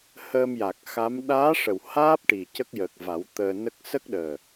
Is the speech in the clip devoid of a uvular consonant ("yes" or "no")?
yes